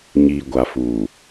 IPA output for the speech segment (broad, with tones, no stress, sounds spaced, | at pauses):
ɲ iː˨ ɡʷ a˨ f uː˨